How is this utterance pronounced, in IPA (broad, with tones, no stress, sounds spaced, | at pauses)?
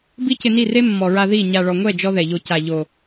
b i˦ c ɪ˧ n i˦˨ r e˦ mː ɔ˨ ɹ a˧ ð i˦˨ ɲ a˨ ɭ ɔ˨ ŋʷ ɛ˦˨ d͡ʒ ɔ˦ ð ɛ˨ ʎ o˧ c a˨ ʎ o˨